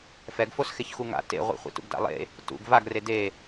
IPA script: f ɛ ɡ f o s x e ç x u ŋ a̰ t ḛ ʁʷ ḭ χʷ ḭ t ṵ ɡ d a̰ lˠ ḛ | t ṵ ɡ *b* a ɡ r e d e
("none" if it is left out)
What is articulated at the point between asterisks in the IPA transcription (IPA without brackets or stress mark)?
v